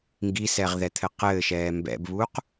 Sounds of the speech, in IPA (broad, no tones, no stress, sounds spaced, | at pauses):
ŋ ɡ i s ɛ ʁ ð ɛ t̪ʰ ɘ q ɘː ʃ ɛː m b ɛ̰ b β uː q